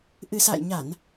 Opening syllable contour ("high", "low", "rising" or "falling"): low